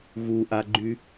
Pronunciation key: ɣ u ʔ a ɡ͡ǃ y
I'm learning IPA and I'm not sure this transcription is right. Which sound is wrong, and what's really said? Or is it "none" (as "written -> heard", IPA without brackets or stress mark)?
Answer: none